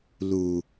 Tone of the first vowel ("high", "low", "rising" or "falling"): low